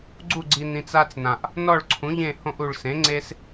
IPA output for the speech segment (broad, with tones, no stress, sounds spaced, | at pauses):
ɡ͡ǀ u˦˨ ɡ͡ǀ i˨ n ĩ˨ t͡s a˦ t͡s n ã˨ ʔ | n ɔ˦˨ ɭ ǀʰ ũ˩˥ ʎ ẽ˦˨ h õ˦ ʔ u˨ ɭ s ẽ˩˥ ŋ͡ǀ e˦ s